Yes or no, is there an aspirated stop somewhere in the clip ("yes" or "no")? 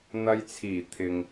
yes